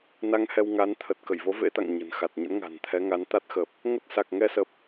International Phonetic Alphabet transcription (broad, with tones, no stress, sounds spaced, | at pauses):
n a˧ ŋ h ɛ˧ w ŋ a˨˦ n t̪ʰ ə˨˩ t̚ k ə˧˩ j v o˨˦ v ḛ˧˥ t̪ a̰˧˨ ŋ ɲ ə̤˨˩ n x a˨˩ t̚ ɲ ə̰˧˥ n ŋ a̤˨˩ n t̪ʰ ɛ˨˦ ŋ a˨˦ n t̪ a˦˥ t̚ x ə˨˩ p̚ | ŋ ə˦˥ t̚ s a˨˩ k̚ ŋ ɛ˧ s ə˨˩ p̚